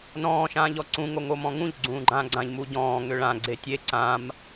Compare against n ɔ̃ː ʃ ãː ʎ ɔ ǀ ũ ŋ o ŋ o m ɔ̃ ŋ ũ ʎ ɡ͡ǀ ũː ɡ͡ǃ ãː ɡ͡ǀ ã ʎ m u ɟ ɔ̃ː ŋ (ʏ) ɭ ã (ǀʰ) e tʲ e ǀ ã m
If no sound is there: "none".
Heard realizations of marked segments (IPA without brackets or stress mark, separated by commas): ʏ, ɡ͡ǀ